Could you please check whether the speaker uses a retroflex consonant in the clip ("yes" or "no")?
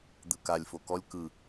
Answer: no